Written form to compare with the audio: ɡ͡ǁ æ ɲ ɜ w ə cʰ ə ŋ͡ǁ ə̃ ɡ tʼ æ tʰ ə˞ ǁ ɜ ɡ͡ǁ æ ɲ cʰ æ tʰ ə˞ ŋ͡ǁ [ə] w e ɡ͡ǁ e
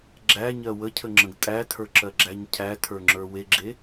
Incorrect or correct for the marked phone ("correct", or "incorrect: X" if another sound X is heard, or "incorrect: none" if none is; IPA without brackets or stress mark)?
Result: incorrect: ə˞